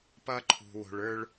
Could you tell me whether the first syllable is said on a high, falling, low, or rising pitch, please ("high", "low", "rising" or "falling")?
high